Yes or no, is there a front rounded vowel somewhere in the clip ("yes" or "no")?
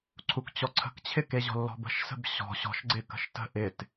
no